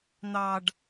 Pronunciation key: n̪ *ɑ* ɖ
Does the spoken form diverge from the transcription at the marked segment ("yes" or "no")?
no